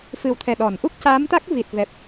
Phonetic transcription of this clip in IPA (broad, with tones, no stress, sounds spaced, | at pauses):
f ɨ˨˩ w t̪ʰ ɛ˨˩ ɗ ɔ˨˩˨ n ʔ u˦˥ k̚ c aː˧˥ m t̪ a˦˥ k̚ v i˨˩ t̚ v ɛ˨˩ p̚